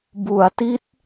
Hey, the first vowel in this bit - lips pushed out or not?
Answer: yes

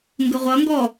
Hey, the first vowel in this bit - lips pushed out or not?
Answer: no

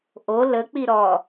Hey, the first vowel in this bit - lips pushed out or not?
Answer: yes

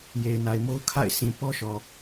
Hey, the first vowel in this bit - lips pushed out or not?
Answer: no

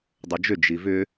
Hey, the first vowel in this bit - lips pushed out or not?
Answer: yes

